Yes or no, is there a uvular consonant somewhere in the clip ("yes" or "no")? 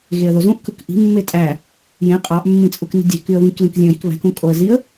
yes